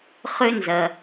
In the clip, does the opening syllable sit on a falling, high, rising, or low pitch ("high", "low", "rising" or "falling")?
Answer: high